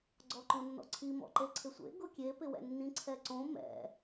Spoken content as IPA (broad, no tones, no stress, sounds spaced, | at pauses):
ɡ͡ǀ ɔ ǃ õ nː ɔ̰ ǀʰ i m ɔ̰ ǃ e ǀʰ ɪ sʷ ḛ ɡ ʊ kʲ e p ɪ w ɛ̰ nː ĩ ǀʰ ɛ ǀ õ m ɛ̰